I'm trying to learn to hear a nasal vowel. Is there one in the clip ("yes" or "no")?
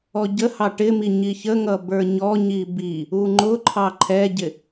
no